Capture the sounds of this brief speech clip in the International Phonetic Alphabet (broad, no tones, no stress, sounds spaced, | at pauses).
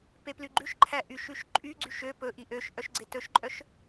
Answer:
p e p l y ɡ͡ǃ ʉ ʃ ǃʰ æ ʔ y ʃ ʉ ʃ ǃʼ y ɡ͡ǀ y ʃ ø p ɵ ʔ i ʔ ø ʃ ʔ œ ʃ ɡ͡ǀ e t ɵ ʃ ǃʼ œ ʃ